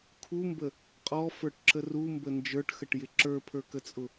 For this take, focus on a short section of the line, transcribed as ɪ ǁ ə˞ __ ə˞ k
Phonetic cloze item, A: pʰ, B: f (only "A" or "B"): A